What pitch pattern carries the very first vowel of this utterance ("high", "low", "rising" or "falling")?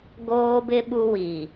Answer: high